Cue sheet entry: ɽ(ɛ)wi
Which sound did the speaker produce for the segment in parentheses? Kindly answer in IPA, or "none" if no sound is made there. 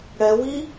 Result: ɛ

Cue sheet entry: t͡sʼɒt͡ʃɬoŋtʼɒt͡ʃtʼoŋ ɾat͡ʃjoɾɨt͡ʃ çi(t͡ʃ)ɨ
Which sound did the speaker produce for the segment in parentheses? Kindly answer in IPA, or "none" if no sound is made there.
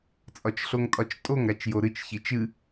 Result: t͡ʃ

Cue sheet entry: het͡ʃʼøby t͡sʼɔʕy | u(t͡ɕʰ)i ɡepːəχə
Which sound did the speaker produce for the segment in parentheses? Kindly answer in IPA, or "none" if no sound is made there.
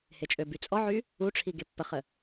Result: ʈ͡ʂʰ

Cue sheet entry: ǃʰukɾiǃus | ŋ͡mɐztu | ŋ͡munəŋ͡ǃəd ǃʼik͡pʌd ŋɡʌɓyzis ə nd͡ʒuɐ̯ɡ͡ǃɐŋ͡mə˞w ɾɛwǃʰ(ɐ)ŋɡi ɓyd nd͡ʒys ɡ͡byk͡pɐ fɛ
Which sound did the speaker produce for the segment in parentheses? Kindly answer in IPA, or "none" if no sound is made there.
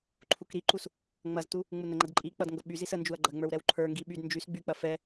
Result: ə˞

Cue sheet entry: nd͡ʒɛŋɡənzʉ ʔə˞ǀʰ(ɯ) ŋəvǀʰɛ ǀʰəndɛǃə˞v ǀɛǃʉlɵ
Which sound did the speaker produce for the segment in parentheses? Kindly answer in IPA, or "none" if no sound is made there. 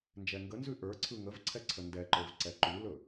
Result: ɯ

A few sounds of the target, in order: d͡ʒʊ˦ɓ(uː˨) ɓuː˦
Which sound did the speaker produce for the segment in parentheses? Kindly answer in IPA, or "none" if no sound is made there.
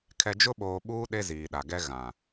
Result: oː˨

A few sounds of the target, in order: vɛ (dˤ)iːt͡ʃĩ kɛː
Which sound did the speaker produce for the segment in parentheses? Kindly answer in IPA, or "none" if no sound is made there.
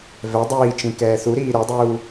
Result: dˤ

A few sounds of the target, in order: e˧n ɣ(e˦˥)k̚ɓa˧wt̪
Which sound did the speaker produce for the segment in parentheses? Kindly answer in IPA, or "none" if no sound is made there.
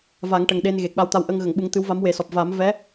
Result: e˨˩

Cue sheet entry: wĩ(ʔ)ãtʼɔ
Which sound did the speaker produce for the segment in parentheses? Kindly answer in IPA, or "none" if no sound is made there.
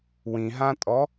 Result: ɦ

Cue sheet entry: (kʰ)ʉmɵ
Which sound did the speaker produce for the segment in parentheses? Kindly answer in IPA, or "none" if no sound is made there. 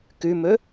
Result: k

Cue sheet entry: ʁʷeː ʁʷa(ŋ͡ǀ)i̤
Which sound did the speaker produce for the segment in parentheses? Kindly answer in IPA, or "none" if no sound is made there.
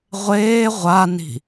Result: n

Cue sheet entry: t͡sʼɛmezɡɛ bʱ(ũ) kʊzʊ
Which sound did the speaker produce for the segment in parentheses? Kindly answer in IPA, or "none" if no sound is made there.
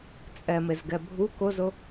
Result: u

